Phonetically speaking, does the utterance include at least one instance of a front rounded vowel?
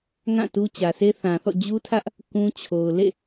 no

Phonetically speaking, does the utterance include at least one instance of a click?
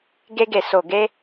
no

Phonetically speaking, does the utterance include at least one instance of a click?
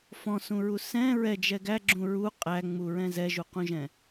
yes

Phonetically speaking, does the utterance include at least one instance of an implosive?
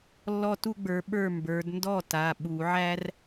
yes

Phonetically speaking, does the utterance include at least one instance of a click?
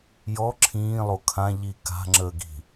yes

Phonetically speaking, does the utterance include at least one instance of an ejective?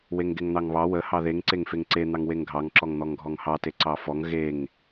no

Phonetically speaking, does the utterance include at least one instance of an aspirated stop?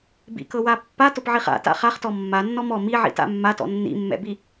no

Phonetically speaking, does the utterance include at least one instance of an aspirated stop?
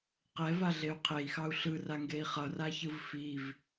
yes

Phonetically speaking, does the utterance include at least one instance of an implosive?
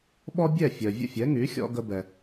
yes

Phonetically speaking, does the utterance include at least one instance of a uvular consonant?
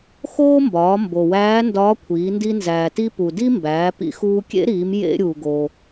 no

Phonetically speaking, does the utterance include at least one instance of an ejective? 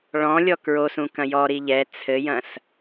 no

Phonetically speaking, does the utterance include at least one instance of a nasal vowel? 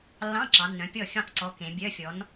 yes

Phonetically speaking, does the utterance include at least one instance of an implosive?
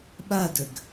yes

